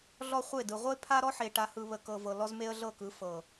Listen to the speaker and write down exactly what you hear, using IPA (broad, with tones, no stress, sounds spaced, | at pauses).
ɮ ɔ˦ χʷ e˦˨ d ɯ˨ ʁʷ ə˦ ɪ̯ pʰ a˦ ɾ ɔ˦ ħ e˨ ʈ a˨ h ɯ˨ β ə˨ k ɤ˨ v ɤ˨ l ɔ˦ z m e˦ ə̯ ɮ ɤ˦˨ k ɯ˨˦ f ɤ˨